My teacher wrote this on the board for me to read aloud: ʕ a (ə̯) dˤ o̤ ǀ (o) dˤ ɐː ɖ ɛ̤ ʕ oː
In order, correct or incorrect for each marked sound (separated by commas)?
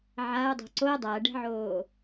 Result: incorrect, correct